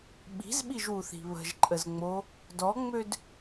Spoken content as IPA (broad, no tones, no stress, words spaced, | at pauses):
ɓi̤zɓiʒwuθi̤ βə̤ʒǃʼəzŋ͡mo | dɔŋ͡mød